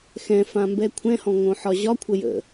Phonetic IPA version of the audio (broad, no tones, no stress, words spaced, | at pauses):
xɛ̃fãmbɛ kʷʰɛ̃hɔ̃ŋõħɒ ʑɒkʷʰə jə̰